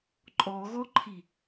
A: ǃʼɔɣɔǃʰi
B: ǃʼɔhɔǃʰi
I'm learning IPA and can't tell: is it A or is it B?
A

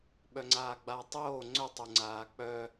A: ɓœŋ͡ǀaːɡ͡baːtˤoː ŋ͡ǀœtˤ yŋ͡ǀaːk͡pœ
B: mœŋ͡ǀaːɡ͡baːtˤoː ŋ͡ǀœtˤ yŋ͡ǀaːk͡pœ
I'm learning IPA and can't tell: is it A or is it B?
A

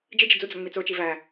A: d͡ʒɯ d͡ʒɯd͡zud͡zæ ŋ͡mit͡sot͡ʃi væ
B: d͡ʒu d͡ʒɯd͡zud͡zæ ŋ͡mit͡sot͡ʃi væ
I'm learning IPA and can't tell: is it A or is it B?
A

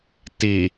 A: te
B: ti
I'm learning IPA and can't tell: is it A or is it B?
B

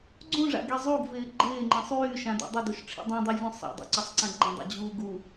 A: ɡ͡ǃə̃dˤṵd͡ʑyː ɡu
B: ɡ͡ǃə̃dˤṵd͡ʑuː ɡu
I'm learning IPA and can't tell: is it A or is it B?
B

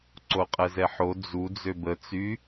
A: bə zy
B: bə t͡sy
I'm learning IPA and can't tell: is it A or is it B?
B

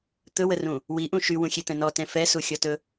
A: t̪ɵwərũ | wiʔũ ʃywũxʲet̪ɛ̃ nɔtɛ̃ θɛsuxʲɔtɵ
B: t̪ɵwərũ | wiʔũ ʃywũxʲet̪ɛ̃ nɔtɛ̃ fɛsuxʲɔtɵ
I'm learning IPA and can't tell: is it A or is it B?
B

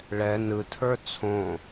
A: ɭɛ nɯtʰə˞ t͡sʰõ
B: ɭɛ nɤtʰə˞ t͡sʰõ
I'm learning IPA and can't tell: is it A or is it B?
A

